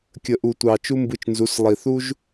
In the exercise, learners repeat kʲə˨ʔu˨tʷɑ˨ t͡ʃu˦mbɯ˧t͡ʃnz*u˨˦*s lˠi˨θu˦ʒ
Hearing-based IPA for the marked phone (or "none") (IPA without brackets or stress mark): u˨˦